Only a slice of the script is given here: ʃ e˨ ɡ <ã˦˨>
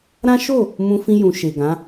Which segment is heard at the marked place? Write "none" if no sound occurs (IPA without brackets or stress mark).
ã˨˦